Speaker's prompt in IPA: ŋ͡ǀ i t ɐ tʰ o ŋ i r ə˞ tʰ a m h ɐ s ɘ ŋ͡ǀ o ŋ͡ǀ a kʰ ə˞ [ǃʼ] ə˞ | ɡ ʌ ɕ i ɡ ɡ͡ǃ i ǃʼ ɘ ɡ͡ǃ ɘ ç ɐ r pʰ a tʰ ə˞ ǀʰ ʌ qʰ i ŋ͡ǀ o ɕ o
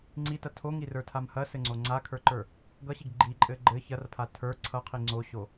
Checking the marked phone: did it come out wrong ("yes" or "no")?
yes